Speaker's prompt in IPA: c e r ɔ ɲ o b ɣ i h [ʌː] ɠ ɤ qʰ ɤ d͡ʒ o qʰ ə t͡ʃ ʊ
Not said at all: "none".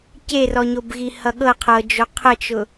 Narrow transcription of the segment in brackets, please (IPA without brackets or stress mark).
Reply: ʌ